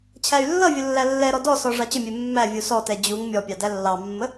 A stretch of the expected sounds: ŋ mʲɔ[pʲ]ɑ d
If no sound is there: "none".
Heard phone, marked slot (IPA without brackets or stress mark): pʲ